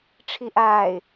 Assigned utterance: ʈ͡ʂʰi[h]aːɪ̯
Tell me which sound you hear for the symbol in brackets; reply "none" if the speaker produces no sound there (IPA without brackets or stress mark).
ʔ